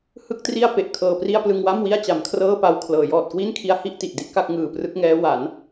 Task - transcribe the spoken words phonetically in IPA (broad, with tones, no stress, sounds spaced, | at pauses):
h ɯ˥˩ k̚ t r i˥˩ a̯ p e˨˩ ʔ kʰ ɤː˧ p r i˥˩ a̯ p l ɯ˧ ŋ w a˥˩ m w i˥˩ a̯ t͡ɕ a˩˦ m kʰ r ɤː˥˩ p a˧ w kʰ l ɤː˩˦ j ɔː˨˩ t̚ k w i˥˩ n kʰ i˦˥ a̯ h i˥˩ ʔ t i˨˩ ʔ d i˦˥ ʔ k a˥˩ k̚ ŋ ɯː˨˩ p r ɯ˦˥ k̚ ŋ ɛː˦˥ w a˩˦ n